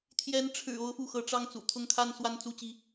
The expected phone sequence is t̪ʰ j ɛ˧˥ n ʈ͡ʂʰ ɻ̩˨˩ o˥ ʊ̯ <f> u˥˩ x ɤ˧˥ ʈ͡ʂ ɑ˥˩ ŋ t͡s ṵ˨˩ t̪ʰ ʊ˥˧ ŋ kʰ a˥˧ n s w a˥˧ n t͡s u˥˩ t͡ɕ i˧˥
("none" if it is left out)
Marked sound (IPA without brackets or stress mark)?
f